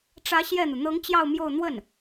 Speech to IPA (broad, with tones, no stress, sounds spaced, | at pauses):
ʈ͡ʂ ä˧˥ ɕ j ɛ˥˩ n̪ u˩ n̪ ɤ˧˥ ŋ t͡ɕ j ɑ˥˧ ʊ̯ m j o˥˧ ʊ̯ n̪ w ə˥˩ n